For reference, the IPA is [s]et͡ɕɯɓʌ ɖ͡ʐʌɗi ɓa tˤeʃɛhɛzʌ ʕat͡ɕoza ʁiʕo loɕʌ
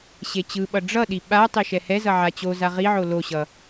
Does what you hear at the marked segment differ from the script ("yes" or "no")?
yes